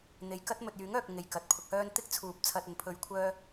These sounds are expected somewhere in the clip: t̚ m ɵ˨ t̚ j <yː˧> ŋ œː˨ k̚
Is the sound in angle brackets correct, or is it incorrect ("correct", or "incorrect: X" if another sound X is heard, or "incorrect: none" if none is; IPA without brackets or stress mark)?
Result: incorrect: yː˨˥